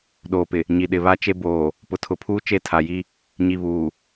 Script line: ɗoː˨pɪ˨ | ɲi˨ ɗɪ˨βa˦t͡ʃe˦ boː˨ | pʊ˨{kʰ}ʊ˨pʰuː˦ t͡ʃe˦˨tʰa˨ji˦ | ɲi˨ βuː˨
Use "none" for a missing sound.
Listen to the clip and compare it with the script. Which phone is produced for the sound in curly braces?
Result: tʰ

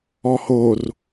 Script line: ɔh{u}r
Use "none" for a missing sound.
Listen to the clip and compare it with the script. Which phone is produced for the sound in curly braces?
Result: o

